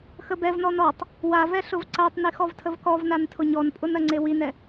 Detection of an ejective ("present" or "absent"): present